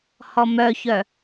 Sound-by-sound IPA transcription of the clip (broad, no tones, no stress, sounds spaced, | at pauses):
h ɔ m œ ç œ